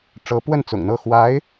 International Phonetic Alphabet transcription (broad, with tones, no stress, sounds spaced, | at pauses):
ʈ͡ʂ ɤ˧˥ p w ə˥˩ n t͡s ʊ̰˨˩ ŋ n̪ ɤ˥˩ x w a˧˥ ɪ̯